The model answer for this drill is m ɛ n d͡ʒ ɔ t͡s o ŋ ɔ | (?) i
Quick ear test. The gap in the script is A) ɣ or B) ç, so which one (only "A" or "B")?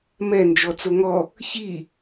B